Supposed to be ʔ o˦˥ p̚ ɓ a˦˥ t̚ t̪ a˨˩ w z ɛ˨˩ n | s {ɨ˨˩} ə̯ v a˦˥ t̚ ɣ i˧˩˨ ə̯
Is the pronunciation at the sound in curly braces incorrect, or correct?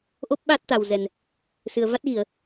correct